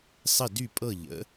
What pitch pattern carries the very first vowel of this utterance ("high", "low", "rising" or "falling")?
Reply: falling